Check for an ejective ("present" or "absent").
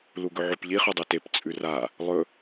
present